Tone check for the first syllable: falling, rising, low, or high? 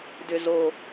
low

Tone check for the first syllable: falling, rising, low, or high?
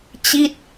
falling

